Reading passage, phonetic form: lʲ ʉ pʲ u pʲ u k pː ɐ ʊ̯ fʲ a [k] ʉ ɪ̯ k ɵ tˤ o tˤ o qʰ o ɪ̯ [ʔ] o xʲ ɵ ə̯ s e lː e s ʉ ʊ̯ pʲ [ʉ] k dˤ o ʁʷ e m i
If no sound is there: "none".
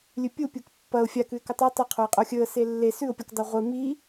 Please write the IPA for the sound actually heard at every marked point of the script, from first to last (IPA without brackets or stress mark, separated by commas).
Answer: k, qʼ, u